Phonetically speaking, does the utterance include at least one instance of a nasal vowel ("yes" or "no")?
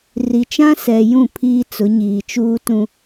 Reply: yes